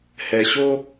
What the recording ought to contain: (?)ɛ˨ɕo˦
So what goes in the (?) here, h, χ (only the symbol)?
h